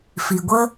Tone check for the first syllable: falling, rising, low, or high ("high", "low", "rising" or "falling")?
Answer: low